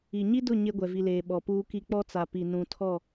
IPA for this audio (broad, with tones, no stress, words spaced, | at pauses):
i˨ɲi˦dʊ˦˨ ɲe˦ɡʷɛ˨vi˨leː˨ ɓɔ˨puː˦ki˦ k͡pɔ˦t͡sa˨pi˨ nũ˨tʰɔ˦˨